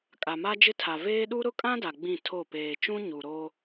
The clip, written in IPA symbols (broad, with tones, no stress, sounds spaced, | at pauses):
kʼ a˨ m a˦ d͡ʒ ɪ˦ tʰ a˨ v eː˦ ɗ u˦ ɾ ʊ˦ kʼ ã˦ d a˨ ɡ͡b ĩ˦˨ tʰ o˦˨ p eː˨ t͡ʃ ũ˦ ɲ u˨ ɾ o˦